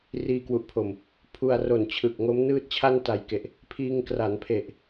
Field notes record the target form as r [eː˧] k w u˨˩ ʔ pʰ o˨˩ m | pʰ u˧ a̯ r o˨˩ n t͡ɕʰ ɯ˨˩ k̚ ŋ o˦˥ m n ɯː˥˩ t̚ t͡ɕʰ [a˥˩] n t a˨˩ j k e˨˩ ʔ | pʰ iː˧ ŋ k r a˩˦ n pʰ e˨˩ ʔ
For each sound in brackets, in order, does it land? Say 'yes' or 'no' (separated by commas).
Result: no, yes